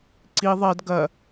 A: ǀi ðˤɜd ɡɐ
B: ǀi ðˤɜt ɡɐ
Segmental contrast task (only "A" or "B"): A